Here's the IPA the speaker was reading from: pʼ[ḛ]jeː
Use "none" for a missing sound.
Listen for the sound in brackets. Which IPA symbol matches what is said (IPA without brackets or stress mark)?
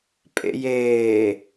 ḛ